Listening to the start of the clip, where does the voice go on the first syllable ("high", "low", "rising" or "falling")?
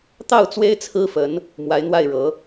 falling